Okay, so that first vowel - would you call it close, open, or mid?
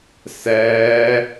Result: mid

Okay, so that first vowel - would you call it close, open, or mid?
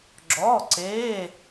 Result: mid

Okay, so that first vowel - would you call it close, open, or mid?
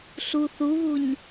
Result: close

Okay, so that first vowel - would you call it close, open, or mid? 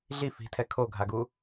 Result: close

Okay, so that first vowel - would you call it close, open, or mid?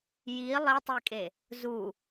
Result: close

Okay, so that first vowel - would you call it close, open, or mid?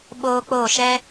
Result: mid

